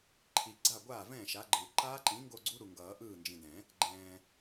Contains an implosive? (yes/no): no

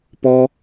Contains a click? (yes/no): no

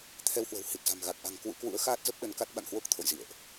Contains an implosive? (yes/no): yes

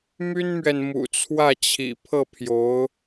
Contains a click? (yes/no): no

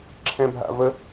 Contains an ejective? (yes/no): no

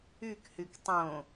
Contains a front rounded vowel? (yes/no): yes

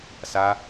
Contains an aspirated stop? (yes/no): no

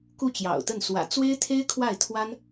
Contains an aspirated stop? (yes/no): yes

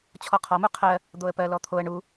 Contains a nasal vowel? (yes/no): no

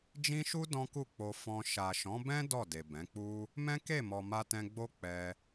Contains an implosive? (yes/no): no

